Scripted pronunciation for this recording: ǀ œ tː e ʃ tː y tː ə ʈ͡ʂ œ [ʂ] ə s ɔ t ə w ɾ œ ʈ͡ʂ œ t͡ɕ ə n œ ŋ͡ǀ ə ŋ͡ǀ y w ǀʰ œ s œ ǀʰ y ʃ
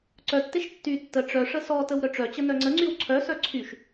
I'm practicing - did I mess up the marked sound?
no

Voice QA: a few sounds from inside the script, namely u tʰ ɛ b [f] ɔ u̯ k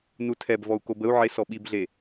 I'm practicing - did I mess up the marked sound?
yes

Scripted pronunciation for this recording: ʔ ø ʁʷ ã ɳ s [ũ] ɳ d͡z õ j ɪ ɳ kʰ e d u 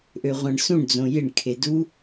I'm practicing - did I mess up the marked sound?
no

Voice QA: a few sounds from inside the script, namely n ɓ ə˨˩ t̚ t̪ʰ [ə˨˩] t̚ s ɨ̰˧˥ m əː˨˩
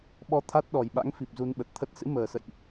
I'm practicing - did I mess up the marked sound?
yes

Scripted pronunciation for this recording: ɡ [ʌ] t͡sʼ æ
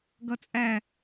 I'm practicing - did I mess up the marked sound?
no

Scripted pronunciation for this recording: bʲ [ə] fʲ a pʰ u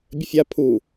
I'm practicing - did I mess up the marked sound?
no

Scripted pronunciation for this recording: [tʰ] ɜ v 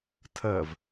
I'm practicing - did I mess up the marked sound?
no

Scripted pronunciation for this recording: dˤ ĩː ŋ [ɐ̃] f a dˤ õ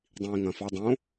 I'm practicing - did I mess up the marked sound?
no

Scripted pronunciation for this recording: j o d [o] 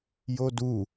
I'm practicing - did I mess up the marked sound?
yes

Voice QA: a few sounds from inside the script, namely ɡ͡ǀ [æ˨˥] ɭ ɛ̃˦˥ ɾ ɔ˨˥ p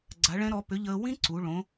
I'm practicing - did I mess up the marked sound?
yes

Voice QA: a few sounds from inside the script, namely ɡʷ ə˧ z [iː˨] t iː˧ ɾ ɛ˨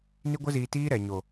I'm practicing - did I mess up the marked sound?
no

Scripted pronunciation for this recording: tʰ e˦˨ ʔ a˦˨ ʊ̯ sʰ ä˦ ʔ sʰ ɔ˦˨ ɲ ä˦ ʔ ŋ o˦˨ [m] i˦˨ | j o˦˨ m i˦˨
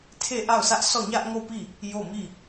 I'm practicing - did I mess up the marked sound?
yes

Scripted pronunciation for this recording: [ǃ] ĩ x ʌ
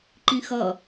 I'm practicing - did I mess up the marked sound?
no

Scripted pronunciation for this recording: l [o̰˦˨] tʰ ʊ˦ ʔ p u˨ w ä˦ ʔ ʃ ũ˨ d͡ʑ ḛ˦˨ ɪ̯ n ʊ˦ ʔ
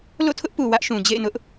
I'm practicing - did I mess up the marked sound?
no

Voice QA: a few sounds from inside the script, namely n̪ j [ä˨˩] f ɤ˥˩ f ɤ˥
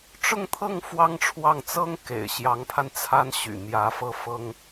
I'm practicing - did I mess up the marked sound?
yes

